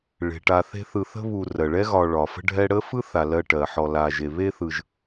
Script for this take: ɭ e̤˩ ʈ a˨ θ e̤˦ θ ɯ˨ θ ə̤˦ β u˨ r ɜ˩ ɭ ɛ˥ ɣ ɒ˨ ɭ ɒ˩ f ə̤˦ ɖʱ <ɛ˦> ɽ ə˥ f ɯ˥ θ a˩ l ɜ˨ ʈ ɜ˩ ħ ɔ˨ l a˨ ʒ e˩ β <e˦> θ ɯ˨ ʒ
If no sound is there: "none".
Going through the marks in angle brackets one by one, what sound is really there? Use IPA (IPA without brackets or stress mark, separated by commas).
ɛ˦, e˦